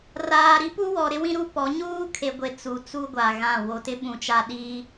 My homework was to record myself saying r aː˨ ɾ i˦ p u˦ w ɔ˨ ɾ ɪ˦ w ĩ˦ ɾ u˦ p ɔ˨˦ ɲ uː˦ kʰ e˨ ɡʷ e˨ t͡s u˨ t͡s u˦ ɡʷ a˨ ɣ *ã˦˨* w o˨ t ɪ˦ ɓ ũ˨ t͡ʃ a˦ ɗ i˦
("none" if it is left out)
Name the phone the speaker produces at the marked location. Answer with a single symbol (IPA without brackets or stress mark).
ã˦˨